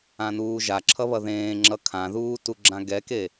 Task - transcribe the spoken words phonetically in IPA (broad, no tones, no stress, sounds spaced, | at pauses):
ã n uː ʒ a ǁʰ ʌ β ʌ ð ẽː ŋ͡ǁ ʌ kʰ ã ð uː t u ɡ͡ǁ ã ɡ ɛ k e